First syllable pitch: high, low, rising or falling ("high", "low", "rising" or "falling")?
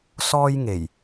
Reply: high